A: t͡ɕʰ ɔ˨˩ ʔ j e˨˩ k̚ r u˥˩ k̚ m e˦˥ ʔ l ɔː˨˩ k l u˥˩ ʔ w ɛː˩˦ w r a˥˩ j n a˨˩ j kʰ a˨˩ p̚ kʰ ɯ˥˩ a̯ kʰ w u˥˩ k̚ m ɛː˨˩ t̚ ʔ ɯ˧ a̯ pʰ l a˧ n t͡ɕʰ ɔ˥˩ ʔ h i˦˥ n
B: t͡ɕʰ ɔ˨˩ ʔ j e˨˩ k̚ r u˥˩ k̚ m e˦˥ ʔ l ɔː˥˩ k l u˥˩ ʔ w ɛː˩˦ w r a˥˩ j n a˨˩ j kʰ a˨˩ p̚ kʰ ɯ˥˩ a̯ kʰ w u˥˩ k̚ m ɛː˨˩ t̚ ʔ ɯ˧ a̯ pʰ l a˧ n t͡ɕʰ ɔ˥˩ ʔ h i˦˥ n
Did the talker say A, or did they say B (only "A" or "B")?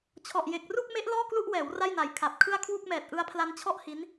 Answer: B